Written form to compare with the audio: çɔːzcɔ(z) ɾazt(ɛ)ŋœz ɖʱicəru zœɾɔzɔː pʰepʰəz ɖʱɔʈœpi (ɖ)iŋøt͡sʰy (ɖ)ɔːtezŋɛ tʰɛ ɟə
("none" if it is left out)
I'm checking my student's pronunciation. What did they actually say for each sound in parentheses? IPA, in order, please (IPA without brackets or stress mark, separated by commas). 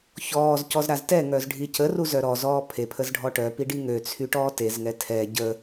z, ɛ, ɖ, ʈ